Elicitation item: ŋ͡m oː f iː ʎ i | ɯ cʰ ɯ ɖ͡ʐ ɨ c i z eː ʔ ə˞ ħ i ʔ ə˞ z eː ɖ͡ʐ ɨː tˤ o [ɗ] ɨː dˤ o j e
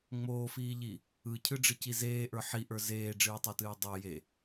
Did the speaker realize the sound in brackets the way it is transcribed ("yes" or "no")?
no